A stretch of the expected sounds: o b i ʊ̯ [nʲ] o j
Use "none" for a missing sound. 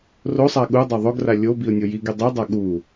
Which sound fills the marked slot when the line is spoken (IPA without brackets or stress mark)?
nʲ